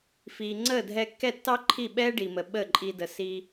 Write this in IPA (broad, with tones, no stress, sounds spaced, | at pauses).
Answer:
f iː˩ ŋ͡ǀ əː˥˩ dʱ ɛ˧ kː ɛ˥˩ tː ɑ˥ ǃʰ i˥˩ ɓ ɛː˥ ɖ i˩ m ə˩ ɓ əː˥˩ ǃʼ i˧ d ə˩˥ s iː˧